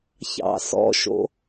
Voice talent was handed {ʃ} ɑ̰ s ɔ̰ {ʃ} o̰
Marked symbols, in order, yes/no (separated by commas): no, yes